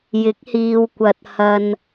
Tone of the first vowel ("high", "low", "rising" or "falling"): rising